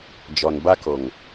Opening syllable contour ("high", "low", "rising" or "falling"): low